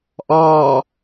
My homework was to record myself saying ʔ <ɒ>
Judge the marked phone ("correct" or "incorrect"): incorrect